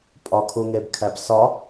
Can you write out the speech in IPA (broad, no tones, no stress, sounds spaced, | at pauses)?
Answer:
pʼ ɒ kʰ u ŋ e b kʰ æ b s ɒ